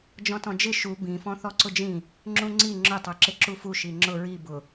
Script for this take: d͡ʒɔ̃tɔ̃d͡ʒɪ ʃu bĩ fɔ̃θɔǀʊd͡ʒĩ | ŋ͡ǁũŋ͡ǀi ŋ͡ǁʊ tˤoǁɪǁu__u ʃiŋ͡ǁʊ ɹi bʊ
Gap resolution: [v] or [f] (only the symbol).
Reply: f